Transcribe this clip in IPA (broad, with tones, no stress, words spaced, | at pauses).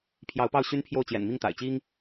pʰjɑ˧˥ʊ̯pɑ˥˩ʊ̯ɕy˥npʰjo˥˩ʊ̯ t͡ɕjɛ̰˨˩nmi˥˩ŋt̪a̰˨˩ɪ̯t͡ɕi˥ŋ